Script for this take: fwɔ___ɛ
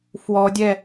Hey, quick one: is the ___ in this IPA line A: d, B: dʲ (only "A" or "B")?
B